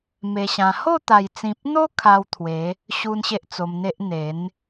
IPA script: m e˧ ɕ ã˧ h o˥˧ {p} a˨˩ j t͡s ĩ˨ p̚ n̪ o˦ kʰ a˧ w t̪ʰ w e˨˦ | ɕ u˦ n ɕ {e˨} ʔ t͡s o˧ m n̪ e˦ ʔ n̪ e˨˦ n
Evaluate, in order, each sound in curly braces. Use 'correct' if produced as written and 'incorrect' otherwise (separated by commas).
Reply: incorrect, incorrect